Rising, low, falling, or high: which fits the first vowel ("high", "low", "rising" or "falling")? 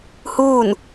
falling